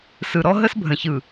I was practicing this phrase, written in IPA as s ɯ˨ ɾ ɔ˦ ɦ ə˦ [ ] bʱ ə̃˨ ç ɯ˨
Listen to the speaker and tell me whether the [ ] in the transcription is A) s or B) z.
A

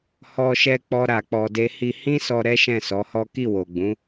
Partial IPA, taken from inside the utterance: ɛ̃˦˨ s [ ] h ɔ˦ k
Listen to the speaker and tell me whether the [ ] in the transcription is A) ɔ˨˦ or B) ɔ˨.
A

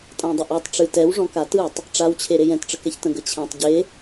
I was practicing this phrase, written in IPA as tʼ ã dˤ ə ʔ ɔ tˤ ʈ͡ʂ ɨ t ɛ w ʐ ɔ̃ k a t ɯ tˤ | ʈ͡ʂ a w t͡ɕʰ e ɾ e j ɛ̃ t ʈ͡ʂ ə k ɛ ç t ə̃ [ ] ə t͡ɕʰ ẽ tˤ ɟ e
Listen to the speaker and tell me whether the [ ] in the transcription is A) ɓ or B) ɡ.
B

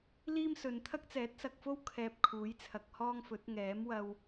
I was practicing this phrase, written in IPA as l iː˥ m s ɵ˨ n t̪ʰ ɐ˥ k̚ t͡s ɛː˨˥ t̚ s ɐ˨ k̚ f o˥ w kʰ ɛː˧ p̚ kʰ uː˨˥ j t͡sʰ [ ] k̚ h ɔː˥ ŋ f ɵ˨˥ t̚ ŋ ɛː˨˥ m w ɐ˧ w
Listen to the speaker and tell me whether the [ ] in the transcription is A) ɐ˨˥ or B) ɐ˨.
B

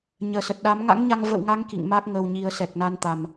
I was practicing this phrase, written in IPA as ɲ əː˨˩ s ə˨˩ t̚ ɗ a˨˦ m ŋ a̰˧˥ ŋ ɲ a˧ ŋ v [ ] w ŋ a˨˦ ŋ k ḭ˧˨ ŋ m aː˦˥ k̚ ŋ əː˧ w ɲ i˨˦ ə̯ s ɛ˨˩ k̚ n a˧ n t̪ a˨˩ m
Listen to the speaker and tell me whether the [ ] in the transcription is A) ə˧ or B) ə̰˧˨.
B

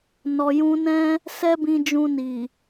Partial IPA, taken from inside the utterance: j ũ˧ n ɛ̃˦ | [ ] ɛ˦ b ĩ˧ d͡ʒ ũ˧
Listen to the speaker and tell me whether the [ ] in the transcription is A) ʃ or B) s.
B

